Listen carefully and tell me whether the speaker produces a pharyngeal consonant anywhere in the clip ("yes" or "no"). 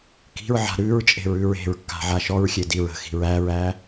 yes